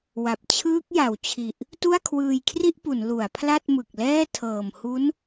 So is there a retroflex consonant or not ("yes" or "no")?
no